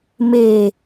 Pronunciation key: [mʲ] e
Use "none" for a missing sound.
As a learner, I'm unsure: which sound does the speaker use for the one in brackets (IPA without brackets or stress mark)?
m